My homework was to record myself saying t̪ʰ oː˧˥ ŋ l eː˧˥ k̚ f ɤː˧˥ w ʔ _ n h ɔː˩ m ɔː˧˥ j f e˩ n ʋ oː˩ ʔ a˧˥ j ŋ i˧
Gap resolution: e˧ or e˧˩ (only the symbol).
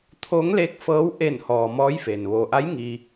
e˧˩